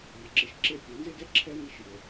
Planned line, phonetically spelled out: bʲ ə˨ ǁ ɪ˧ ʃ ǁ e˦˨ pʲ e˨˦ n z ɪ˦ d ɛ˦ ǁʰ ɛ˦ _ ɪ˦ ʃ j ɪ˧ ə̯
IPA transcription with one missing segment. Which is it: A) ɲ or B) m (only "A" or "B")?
B